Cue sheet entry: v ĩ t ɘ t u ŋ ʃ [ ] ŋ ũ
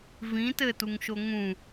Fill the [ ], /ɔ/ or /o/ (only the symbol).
o